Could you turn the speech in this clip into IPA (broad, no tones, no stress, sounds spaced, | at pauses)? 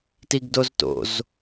t i ɡ d o z t o̰ z